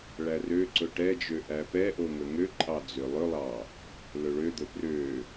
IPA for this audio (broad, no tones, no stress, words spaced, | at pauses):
ɭærø ǀɵʈɛd͡ʒø ʔæpɛʔoŋɵ ŋøǃʼɑd͡zø lˠɵlˠɑ | lɵɭød̪ɵ prø